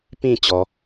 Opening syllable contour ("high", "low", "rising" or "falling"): falling